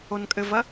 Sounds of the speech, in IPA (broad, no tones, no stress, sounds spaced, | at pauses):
o n kʼ ɘ v ɐ